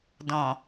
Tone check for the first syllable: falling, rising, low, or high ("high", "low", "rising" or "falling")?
low